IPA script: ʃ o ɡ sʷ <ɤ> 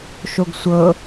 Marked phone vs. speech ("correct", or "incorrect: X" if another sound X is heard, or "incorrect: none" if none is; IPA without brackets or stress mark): correct